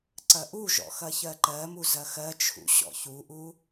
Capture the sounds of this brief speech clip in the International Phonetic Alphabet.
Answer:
ǀɐʔuʒɔ̰ xɐçɜǃɜmu zɐxɜt͡ʃʰṵ ɕɔ̰çuʔu

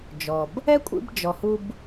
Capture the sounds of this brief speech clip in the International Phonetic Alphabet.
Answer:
d͡ʒɔ˨b | ɛ˦kʷʼḭ˧bd͡ʒɔ˨hu˧b

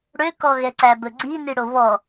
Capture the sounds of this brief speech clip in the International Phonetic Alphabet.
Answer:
ɽøkɔɣɛǀæ bɵɡ͡ǀini ɽoβɔ

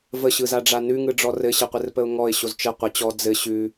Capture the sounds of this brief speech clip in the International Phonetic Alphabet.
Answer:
vəɕɯzaɖ͡ʐa nʉŋɯɖ͡ʐɔ rɘɕɘqʷɘrpəʊ̯ ŋɔɪ̯ɕoz t͡ʃɘ qʷə t͡ɕɔ d͡zɘ ɕʉ

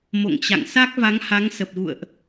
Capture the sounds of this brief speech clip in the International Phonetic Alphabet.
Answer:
mo̰˧˨ŋt͡ɕa̰˧˨ŋ sa˦˥k̚va˨˦ŋha˨˦ŋ sə˨˩p̚ɣṵ˧˨ə̯ʔ

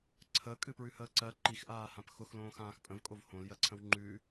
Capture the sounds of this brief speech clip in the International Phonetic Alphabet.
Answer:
ǀʰəːkʼɨpɹʉhəː ǀɜ ǃixʔaːhãp xʊxlõːxãːx pʼə̃vkʼov hõljɜǀʰə̃w ŋ͡ǃʉ

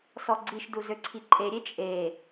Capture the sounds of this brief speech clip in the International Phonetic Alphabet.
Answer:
sɔɡ͡ǀiʃdu zøǀʰiǃʼe ɾʲet͡ʃʼe

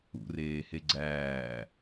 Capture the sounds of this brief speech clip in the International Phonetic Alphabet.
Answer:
ṵreːhe ɡ͡ǀæː

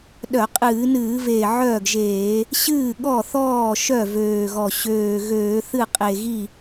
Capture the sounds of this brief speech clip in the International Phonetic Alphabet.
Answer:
ɗœ˧˩˧ qʼɨː˧˩˧nɨː˧˩˧veː˨˩ ʕœː˥˩ɡʒeː˧˩˧ | ɕɨː˥˩ɠɔ˥˩θɔː˥˩ ʃœ˥˩vøː˨˩ɣɔ˨˩ ɕøː˨˩ɣøː˧˩˧θɨ˥˩ qʼe˨˩ɣi˥˩

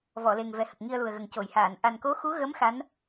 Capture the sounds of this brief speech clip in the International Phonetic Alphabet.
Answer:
vɔ˨˩˨ le˨˩ŋvɛ˨˩hə˨˩k̚ ŋi˧ə̯lu˨˩ə̯ɣə˨˩ŋ co˨˩˨jhaː˨˩˨n ʔa˨˩nko˧˥ xu˧˥ɣə˧˥m xa˧˥n

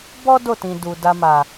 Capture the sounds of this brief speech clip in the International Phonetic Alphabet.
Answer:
bɔ˦ do˦˨tĩ˨ du˨ da˧ma˨

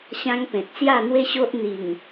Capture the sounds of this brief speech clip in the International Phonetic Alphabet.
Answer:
ɕã˦ŋpẽ˨t̚ sja˥˧n̪we˦ɕo˦ʔ n̪i˨˩ŋ

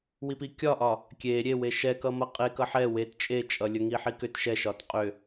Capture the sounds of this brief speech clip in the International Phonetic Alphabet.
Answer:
wipikʲɒʔɒ | kʲe ɾʲewe ʃɛkʌmʌ qʼek ʌħɛ wet t͡ʃʼet͡ʃʼʌlʲə ŋiħikʏt ʃɛʃɒt qʼʏ

